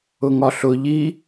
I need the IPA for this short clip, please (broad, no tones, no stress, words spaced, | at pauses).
ʊŋɒɬʊ ʎi